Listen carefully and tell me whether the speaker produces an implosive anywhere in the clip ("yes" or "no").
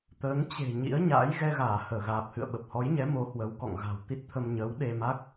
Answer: yes